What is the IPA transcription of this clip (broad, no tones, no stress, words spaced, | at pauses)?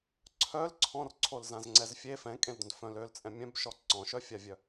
ǀʰœl ǀʰɔ̃rǀʰolzãzŋ͡ǀɛz fʲe fɛ̃kʼẽldœ̃d fœ̃ lølt͡sʼɛ̃ mʲœ̃bʃɔ ǀɔ̃ʃœfʲavʲœ